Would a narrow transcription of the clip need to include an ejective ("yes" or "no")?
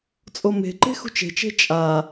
yes